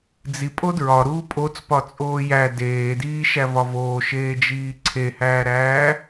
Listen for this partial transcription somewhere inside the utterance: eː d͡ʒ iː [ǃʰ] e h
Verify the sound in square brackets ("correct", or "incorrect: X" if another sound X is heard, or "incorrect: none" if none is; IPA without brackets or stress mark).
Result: incorrect: ǀʰ